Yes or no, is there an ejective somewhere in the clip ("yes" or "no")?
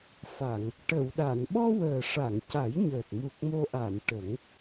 no